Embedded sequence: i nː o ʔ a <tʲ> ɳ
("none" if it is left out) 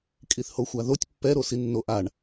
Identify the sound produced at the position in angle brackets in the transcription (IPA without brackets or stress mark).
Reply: none